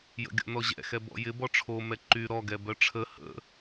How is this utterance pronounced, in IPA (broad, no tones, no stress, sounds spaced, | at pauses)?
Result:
j ə̰ ɡʲ ɔ̰ n ɔ ʑ ɛ̰ x ɛ b ɔ̰ j ɪ b ɔ ʈ͡ʂʰ o m ɛ ǃ y ɾ ɔ ɡ ɛ b œ ʈ͡ʂʰ ə h ə̰